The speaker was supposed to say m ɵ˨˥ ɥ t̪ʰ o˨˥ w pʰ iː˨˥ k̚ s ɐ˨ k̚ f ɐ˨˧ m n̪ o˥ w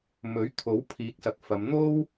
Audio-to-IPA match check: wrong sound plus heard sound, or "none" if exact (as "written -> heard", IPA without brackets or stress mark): none